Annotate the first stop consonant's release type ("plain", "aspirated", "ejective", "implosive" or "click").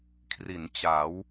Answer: aspirated